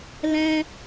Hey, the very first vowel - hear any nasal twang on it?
yes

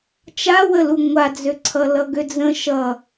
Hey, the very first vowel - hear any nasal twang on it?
no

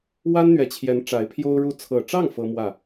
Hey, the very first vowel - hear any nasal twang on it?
no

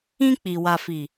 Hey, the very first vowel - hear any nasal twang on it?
yes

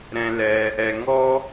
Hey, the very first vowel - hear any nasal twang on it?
yes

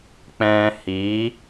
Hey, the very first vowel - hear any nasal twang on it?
yes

